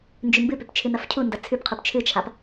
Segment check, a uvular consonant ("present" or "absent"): present